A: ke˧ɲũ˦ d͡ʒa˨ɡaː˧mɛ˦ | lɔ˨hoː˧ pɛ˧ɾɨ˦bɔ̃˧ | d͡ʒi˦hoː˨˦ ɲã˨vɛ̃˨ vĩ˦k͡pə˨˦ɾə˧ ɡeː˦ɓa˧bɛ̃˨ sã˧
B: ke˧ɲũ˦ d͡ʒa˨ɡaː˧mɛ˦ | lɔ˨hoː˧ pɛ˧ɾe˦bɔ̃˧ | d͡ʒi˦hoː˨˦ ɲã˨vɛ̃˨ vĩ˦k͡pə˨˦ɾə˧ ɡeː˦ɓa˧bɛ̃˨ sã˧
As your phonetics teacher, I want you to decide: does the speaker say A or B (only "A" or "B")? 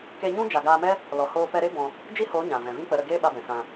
B